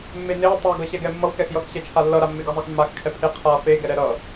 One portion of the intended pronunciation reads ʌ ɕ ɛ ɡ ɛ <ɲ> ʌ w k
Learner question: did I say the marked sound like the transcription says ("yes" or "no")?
no